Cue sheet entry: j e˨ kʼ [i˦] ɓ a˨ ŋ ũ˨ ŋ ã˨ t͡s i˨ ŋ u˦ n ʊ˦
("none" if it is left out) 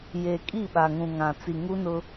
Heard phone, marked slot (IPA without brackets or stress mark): i˦˨